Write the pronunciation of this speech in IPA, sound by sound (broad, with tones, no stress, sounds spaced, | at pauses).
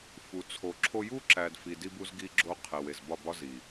f u˨ t͡sʰ o˨ ǁʰ o˦ j u˦ ǁ æ˨ d f i˨ d i˦ b u˦ z ɡ i˦ ɡ͡ǁ o˦ qʰ e˨ w e˨ z b ɒ˦˨ b ɒ˦ z i˨